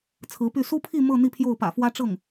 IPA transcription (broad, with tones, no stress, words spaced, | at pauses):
t͡sʰɹ̩˧˥py˥˩ su˥pʰi˥˧ mɤ˥˧ n̪i˥˧pʰjo˥˩ʊ̯pä̰˨˩fwä˥ ʈ͡ʂɤ˥˩ŋ